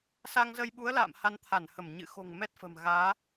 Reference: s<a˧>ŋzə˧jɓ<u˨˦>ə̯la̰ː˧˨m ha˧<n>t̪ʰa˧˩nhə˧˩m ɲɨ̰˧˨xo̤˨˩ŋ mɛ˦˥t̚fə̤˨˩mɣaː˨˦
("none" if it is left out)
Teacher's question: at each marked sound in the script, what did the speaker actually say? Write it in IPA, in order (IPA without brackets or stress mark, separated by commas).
a˧, u˨˦, n